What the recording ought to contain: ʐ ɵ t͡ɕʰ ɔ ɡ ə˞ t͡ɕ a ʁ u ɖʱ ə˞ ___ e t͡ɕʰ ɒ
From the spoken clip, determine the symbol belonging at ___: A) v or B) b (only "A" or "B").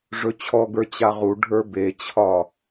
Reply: B